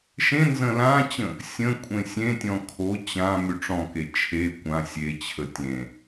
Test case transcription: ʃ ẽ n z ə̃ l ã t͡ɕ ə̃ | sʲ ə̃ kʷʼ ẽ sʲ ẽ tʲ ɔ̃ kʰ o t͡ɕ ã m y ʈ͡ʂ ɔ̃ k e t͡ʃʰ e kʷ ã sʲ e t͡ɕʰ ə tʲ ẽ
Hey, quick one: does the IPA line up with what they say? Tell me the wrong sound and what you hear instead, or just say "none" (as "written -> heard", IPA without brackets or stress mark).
none